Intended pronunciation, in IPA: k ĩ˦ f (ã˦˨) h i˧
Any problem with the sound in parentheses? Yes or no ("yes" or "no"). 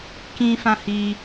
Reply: yes